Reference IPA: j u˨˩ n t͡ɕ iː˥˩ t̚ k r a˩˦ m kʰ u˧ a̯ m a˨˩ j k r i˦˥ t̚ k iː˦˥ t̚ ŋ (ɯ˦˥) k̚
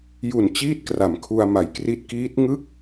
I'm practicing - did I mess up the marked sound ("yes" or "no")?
no